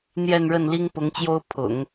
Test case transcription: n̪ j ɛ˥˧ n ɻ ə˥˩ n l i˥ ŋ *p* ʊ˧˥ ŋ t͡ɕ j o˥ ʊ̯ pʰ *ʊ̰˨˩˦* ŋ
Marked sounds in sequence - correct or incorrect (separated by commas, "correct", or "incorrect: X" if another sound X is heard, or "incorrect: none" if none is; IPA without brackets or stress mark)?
correct, correct